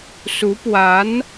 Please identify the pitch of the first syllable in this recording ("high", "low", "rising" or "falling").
rising